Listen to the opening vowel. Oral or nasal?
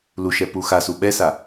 oral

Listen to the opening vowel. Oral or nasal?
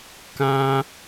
nasal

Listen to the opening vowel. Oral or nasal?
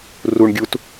oral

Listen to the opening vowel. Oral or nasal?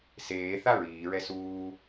oral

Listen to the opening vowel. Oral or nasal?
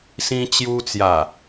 nasal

